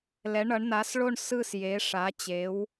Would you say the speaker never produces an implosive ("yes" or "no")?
yes